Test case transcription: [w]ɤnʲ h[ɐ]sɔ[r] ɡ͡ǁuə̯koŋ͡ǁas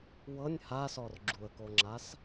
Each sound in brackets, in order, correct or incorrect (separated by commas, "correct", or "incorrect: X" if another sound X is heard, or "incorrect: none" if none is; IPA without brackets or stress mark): correct, incorrect: a, correct